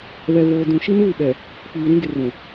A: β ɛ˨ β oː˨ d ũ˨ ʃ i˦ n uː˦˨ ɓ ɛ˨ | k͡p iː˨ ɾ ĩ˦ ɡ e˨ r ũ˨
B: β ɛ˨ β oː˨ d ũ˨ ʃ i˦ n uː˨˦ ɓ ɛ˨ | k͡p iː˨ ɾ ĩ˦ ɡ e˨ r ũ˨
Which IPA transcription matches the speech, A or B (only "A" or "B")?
A